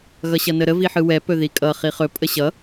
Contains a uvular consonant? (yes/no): yes